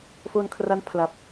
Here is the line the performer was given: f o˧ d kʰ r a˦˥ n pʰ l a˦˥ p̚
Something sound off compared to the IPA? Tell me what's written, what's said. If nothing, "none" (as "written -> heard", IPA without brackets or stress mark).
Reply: d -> n